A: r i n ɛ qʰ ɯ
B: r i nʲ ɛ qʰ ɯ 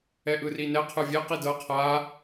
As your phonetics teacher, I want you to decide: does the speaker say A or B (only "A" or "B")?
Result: A